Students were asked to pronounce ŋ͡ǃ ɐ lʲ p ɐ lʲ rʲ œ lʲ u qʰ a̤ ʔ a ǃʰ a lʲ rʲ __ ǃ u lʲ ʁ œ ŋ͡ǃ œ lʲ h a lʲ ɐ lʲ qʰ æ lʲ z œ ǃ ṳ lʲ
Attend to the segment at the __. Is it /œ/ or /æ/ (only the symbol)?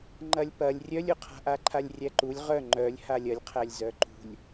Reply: æ